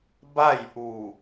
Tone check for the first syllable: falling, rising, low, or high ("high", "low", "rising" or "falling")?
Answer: falling